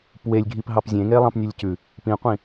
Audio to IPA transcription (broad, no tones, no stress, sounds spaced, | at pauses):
p w e lʲ ɡʱ i p ɦ ɑ p zʲ ẽ ŋ e lˠ ɑ̃ p nʲ ɵ lʲ c ʉ | p ĩ qʷ ĩ